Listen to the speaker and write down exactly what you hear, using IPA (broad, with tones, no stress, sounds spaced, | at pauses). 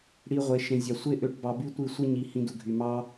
ɽ i˧ ʁʷ e˨ ʃ ẽ˨ zʲ ɑ˨ sʷ e˦ ʔ ø˧ ʈ b ɑ˧ b y˦ tʷ i˦˨ sʷ e˦ ɲ i˨ h ĩ˧ d u˨ ɡʱ y˨ m ɑ˦